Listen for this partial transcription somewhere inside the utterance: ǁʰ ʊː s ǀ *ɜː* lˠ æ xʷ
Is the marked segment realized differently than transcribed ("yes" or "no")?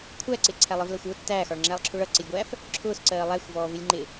no